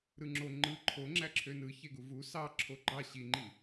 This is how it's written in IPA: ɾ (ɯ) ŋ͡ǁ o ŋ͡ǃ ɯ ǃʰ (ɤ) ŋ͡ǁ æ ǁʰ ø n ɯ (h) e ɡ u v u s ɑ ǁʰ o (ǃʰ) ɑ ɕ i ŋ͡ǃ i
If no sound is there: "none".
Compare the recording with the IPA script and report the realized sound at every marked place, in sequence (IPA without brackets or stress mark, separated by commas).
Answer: ɯ, o, ç, ɡ͡ǃ